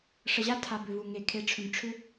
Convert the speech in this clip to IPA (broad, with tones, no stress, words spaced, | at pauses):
ʂə˨ʑa˦ tʰa˨bʏ˨vu˨ ŋe˨ kʰe˨ʈ͡ʂʰʏ˨m ʈ͡ʂʰʏ˦